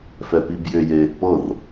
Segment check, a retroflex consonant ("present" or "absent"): absent